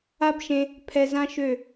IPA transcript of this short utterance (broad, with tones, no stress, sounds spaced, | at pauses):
a˦ b ʃ ẽ˧ | pʰ ɛ˧ z ã˦ ʃ ø˦˨